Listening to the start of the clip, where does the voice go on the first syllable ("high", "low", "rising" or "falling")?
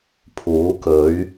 rising